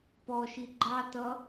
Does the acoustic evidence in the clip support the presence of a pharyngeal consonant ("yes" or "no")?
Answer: no